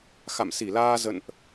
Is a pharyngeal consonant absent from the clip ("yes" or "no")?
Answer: yes